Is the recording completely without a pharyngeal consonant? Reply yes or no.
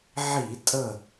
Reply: no